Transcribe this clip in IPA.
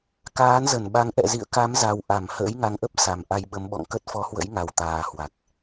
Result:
k aː˨˦ n z ə˧˩ n ɓ a˨˦ ŋ ʔ ɛ̰˧˨ z ḭ˧˨ ə̯ k a˨˦ m z a˨˩ w ʔ a˧˩ m h ə̰ː˧˥ j ŋ a˨˦ ŋ ʔ ə˦˥ p̚ s a˨˩ m ʔ a˧ j ɓ ə˨˦ m ɓ ɔ̰˧˨ ŋ k ə˦˥ t̚ f ɔ˨˦ h w ə̰˧˥ j ŋ a˨˩ w t̪ aː˨˩ h w a˨˩ k̚

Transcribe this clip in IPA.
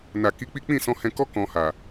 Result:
n a˨ k i˨˦ k͡p i˦ k͡p ĩ˦˨ s ɔ̃˧ h ɛ̃˧ k ɔ˦ k ɔ̃˧ h a˨

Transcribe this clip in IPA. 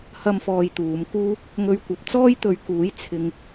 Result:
h ɐ˧ m f ɔː˨ j t̪ uː˨˧ m k uː˥ | ŋ ɵ˥ ɥ kʷ ɐ˧ p̚ t͡s ɔː˥ j t̪ ɵ˨˧ ɥ k uː˨˥ j t͡sʰ ɪ˧ ŋ

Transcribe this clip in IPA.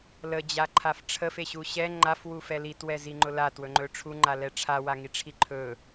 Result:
l ə d͡ʑ a ǃʰ a f ʈ͡ʂʰ ə f e ɕ u ɕ ɛ ŋ͡ǃ a f w u f ɛ l i t w ɛ z i ŋ͡ǃ ʊ l a t w ɵ ŋ͡ǃ ɵ ʈ͡ʂʰ u ŋ͡ǃ a l ɛ ʈ͡ʂʰ a w a ŋ i ʈ͡ʂʰ i ǃʰ ɵ

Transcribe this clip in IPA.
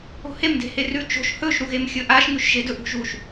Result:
o̤ h e m d e̤ h e r ʉ t͡ʃ o̤ ʃ h ɵ ʒ ɾ u ɣ e m xʲ ɵ ʔ a ʃ ŋ ʉ ʃ ʒ e d ɵ ʔ ṳ ʒ u ʃ

